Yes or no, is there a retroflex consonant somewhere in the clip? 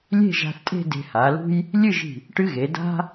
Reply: yes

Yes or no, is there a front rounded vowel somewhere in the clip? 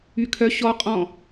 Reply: yes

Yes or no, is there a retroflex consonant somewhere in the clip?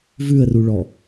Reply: yes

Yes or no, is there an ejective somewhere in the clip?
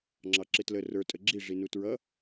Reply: yes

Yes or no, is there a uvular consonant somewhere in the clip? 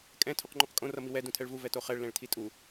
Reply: yes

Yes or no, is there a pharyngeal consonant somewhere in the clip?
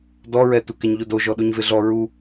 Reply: no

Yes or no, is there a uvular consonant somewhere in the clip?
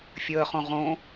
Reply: yes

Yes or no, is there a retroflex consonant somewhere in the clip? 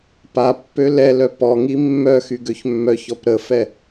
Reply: no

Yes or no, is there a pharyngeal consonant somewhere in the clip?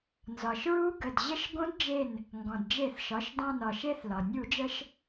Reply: no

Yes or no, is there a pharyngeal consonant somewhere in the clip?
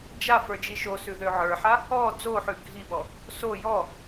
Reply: yes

